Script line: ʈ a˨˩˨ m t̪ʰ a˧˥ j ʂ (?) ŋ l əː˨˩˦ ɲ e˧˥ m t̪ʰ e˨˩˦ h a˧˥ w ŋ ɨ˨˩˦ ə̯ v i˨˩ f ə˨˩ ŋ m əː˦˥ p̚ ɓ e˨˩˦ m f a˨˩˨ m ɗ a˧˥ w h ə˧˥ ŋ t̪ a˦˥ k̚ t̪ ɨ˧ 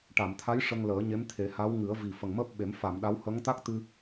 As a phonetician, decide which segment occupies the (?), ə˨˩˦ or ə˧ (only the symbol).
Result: ə˧